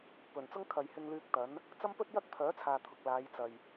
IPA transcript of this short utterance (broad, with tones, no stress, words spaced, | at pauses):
pɵ˨˩nt͡sʊ˥ŋ kʰɐ˨jhɪ˧ŋlyː˧k̚ t̪ɐ˨˥n | t͡sɐ˥mpɵ˥t̚jɐ˥k̚ pʰœː˨˥t͡sʰaː˨ t̪ʰʊ˨k̚laː˨˧j t͡sɐ˨j